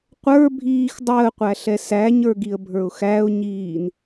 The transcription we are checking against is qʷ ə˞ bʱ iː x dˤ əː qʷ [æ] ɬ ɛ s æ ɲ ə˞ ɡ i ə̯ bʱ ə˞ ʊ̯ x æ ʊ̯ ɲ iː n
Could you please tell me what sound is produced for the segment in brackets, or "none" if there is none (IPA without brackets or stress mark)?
æ